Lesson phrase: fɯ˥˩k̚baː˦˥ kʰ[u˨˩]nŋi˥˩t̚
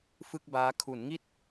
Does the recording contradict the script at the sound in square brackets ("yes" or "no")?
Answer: yes